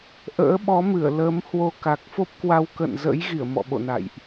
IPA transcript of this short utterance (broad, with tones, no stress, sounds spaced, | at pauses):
ʔ ə̰ː˧˥ ɓ ɔ˨˦ m ɨ˧˩ ə̯ l ə˨˦ m h w o˧ k a˨˩ k̚ f o˦˥ p̚ k w a˧ w k ə̰˧˨ n z ə̰˧˥ j ɣ i˧˩ ə̯ m ɔ̰˧˨ ɓ o̰˧˨ n a̰˧˨ j ʔ